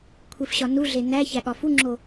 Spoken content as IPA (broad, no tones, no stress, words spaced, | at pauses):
kʷʰefɕɒnuɮe næ çæɠɒfuŋ͡ǁo